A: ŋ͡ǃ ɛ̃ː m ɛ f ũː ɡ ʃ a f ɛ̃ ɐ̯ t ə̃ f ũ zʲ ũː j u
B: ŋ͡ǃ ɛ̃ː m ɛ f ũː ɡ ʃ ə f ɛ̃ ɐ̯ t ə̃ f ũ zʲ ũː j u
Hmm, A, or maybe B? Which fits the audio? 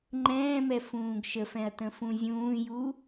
B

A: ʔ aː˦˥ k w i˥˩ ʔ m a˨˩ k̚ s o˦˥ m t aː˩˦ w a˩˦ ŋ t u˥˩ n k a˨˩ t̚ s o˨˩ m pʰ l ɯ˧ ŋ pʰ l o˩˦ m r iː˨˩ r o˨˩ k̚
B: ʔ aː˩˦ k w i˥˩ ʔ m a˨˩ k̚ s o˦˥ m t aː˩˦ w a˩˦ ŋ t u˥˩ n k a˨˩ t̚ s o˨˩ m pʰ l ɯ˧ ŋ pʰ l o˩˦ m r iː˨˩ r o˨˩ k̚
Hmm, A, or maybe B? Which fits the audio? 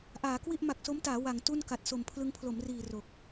B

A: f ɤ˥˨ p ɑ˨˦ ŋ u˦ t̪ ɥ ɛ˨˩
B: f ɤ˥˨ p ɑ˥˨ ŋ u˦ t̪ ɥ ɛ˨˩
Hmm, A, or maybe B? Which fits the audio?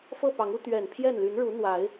A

